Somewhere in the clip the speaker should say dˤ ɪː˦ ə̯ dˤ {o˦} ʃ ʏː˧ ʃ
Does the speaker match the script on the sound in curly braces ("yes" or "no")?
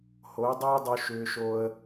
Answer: no